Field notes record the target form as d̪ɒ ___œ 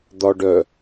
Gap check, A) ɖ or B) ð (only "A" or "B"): A